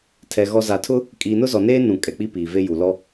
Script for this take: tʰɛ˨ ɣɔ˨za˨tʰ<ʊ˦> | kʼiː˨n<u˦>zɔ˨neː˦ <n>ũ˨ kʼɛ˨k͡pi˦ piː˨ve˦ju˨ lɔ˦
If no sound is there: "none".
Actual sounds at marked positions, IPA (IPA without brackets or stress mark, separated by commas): ʊ˦, ʊ˦, n